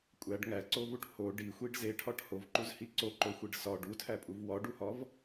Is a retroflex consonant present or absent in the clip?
present